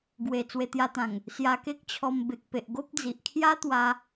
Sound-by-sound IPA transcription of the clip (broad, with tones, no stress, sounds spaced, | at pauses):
ɡ w e˨˩ t͡s w e˧ t̪ j a˧ t̪ ã˨˩ ŋ | s j a˧ k e˦ k̚ t͡ɕʰ ɔ˧ m b e˨ k̚ p e˨ ʔ ɡ o˦ p̚ d͡z i˨ ʔ kʰ j a˦ t̪ w a˧